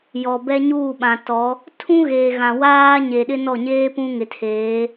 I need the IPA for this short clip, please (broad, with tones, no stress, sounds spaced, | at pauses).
j ɔ˨ b ɛ˦ ɲ uː˦˨ ɓ ã˨ t ɔ˨˦ | tʰ ũ˦ ɣ eː˨ ɣ ã˨ w aː˦ ɲ e˨ ɗ ɪ˦ n ɔ˦˨ ɲ eː˦ p ũ˦ ŋ ɪ˨ tʰ eː˨˦